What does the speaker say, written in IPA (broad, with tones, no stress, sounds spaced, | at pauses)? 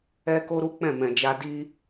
ɛ˦ k o˦ ɾ u˦ k͡p ɛ̃˦˨ m ɛ̃˨ d͡ʒ a˧ d i˦